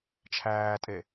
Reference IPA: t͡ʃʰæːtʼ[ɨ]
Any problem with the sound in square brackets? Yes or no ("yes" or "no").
yes